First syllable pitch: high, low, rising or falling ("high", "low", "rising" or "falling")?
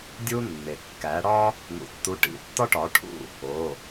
high